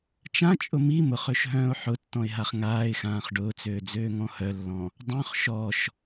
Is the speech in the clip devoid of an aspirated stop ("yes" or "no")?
yes